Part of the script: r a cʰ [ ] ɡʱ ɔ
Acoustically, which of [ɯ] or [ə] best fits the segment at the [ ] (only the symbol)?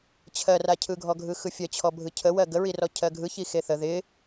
ɯ